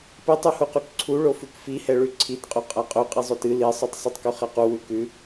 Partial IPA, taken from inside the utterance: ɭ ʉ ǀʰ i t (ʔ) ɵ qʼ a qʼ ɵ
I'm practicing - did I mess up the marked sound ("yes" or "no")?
yes